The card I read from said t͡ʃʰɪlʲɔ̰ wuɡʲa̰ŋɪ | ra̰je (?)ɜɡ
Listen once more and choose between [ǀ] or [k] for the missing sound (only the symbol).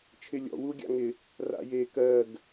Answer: k